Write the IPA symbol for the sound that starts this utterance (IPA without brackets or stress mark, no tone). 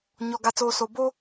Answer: ɲ